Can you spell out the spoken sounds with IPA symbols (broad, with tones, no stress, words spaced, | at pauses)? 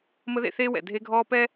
mə˦ðḛ˦θeː˦wɛ̰˨ dʱe˦ɡʱɔː˦pɛ˦